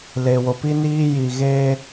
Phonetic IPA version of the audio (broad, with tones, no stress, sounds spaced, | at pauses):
l e˨ w o˨ p i˦ n iː˦ j i˨ ɣ eː˦